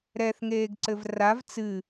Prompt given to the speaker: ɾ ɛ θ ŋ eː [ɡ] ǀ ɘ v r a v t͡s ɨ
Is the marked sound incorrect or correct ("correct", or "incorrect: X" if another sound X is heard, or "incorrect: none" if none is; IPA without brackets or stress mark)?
correct